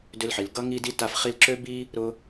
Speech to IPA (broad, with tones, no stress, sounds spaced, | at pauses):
d ʏ˧ l ħ i˩ l ɡ ʌ˥ ŋ i˥ d i˥ t a˧ f χ i˧ l ǁ ø˥ b i˥ | ɾ ʊ˥